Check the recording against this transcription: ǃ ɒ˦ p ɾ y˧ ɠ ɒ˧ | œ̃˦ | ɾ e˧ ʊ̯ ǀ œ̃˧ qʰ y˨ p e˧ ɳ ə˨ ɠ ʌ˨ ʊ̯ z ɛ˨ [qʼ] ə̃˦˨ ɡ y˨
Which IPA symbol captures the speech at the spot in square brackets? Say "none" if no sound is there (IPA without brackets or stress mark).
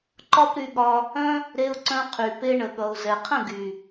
qʰ